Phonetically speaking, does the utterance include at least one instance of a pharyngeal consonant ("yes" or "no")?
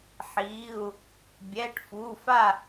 yes